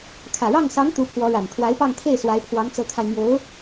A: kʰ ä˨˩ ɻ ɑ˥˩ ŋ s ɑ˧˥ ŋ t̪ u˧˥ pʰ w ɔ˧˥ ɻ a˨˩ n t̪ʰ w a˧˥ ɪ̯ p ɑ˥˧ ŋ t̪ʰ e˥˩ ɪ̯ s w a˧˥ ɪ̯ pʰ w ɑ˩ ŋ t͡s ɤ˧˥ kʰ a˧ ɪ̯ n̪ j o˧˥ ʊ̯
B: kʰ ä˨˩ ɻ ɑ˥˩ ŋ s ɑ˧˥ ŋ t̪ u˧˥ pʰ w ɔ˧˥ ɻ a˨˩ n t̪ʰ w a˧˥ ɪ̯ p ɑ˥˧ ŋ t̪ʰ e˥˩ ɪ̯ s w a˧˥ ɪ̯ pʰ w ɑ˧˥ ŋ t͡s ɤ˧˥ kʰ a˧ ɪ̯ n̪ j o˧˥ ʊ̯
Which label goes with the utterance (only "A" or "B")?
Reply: B